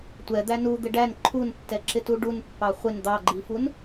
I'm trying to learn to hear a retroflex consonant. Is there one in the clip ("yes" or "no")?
yes